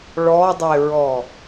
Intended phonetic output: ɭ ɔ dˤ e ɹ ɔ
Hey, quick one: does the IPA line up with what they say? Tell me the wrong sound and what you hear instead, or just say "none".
none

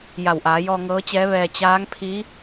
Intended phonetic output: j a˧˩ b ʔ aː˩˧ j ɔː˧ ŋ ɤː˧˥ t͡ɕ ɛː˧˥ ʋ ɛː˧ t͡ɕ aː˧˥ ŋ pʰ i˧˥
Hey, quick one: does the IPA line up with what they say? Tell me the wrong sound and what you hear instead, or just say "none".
b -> w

